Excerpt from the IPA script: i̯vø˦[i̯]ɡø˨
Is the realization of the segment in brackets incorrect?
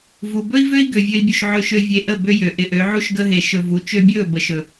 no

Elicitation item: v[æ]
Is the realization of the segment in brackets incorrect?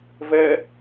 yes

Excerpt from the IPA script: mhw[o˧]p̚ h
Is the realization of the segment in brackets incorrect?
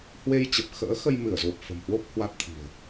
yes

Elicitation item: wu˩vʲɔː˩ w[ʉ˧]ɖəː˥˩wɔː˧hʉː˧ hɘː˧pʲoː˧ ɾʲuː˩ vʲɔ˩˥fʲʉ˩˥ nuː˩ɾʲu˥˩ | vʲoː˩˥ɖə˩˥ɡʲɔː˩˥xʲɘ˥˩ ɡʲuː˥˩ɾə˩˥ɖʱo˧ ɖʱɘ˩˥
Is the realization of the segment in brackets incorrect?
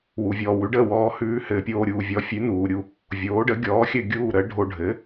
yes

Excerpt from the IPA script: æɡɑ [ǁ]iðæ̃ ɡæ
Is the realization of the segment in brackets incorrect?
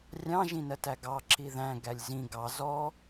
no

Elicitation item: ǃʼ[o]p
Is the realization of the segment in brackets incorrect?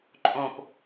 yes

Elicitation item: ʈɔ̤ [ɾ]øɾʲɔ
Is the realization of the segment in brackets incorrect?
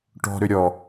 no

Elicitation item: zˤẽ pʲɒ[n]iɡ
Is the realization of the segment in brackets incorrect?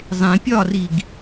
yes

